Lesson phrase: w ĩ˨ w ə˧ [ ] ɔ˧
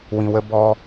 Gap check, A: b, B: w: A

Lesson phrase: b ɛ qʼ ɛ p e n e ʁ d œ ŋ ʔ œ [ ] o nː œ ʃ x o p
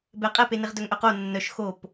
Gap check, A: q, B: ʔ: A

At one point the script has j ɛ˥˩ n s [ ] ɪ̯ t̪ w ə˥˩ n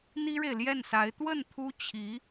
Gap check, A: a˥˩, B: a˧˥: B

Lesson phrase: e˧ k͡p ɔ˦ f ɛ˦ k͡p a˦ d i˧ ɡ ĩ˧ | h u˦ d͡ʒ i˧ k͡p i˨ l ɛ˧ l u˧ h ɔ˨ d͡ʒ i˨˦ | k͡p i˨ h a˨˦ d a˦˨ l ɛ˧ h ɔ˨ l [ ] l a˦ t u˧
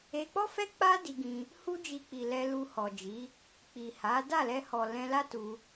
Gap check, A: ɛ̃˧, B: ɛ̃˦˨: A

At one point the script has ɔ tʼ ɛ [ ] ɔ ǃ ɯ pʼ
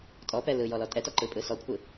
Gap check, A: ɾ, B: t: B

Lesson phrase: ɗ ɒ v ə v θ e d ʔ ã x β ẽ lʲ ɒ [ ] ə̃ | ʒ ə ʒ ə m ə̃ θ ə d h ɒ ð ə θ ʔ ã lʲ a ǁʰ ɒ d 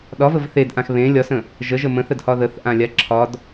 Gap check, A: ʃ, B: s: B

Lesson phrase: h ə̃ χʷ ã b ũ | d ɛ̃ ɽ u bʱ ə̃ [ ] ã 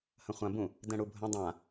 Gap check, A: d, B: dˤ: B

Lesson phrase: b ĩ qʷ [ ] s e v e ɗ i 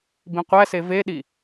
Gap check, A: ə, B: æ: B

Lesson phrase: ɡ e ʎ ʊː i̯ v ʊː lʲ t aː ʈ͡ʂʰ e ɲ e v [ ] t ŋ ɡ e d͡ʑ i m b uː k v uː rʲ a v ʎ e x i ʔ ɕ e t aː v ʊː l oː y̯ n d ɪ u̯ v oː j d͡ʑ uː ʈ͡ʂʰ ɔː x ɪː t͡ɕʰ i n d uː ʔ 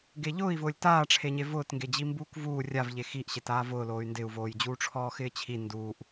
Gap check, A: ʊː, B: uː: A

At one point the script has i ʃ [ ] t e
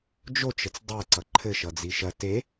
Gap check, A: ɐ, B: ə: A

